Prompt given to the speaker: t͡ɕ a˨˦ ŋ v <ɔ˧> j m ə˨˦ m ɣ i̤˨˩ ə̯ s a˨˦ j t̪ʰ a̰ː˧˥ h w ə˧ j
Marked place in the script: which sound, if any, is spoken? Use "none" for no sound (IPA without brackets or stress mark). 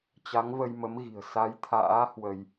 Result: ə˧